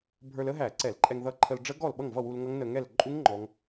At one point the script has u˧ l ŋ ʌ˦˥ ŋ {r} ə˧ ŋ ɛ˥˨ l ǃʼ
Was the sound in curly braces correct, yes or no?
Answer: no